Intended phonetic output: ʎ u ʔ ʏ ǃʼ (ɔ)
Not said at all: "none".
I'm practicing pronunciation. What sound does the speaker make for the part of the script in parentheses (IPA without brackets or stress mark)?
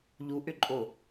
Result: o